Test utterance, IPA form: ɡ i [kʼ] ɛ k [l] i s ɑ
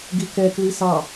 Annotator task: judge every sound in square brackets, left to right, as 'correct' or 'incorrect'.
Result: incorrect: k, correct

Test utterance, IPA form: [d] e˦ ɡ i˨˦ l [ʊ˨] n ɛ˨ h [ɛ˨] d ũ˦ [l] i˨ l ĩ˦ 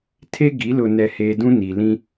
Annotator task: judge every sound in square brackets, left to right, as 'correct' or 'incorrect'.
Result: incorrect: tʰ, correct, incorrect: e˨, incorrect: n

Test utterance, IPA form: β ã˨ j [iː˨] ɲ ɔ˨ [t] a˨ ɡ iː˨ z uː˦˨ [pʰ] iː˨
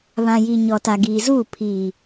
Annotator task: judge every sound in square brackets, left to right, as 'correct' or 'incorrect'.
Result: incorrect: i˨, correct, correct

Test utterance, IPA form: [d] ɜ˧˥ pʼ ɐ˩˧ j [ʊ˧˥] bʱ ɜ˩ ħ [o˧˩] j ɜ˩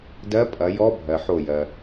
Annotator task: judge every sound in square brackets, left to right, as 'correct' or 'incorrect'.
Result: correct, incorrect: ɔ˧˥, correct

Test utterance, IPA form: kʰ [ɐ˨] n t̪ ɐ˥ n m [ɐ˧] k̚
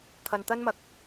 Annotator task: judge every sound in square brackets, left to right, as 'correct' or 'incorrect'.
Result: correct, incorrect: ɐ˨˥

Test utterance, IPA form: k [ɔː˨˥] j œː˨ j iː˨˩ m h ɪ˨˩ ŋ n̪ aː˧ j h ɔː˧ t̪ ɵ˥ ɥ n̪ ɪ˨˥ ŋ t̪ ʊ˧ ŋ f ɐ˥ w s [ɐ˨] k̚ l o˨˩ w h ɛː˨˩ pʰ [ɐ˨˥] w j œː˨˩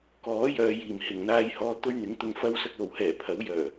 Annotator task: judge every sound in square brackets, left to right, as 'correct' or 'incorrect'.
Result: correct, incorrect: ɐ˧, correct

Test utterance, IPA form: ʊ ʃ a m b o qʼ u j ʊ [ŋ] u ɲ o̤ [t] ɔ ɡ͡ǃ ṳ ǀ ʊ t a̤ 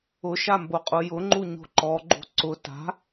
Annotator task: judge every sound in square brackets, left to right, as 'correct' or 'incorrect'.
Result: incorrect: ŋ͡ǃ, incorrect: ǃ

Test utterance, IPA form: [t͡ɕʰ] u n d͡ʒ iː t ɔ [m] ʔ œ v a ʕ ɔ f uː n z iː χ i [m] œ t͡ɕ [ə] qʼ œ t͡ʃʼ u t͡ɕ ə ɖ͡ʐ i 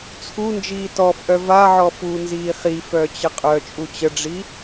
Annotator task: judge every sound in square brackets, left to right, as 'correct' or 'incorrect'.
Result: incorrect: t͡sʰ, incorrect: f, incorrect: f, correct

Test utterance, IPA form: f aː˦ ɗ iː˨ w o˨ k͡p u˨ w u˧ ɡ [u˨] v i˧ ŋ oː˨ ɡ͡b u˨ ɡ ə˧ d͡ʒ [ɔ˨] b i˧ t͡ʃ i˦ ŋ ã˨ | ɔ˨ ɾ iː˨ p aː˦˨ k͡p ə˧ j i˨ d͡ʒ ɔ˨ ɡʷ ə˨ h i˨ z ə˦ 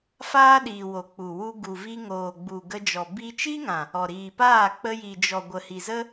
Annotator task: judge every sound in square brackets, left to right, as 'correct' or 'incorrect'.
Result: correct, correct

